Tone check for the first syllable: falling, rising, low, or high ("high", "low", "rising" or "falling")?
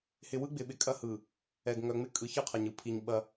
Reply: low